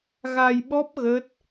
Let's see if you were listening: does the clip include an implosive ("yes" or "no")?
yes